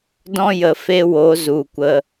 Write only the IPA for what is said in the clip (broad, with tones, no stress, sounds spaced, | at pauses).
d ɔ̃˦ j ə˨ f e˦ w o˨˦ z u˨ kʷ ə˧